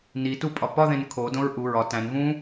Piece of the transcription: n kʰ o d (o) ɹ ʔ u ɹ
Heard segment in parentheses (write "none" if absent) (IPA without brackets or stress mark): õ